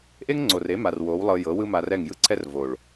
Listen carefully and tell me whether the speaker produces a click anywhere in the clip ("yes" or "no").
yes